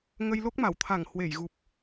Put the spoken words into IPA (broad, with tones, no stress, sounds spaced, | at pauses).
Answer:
ŋ ə˧ j l o˦˥ k̚ m a˧˩ w t̪ʰ a˧˩ ŋ h w e˧˩ j ɣ u˨˩ p̚